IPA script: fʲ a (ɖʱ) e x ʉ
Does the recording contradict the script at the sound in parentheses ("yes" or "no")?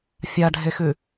no